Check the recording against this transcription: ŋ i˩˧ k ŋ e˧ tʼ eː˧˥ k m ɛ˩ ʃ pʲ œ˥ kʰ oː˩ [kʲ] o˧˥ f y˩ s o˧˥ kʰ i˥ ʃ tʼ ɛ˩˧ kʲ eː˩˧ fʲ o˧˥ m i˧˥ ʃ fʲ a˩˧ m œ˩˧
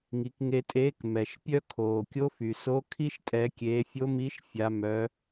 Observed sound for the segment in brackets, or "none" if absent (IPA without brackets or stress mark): kʲ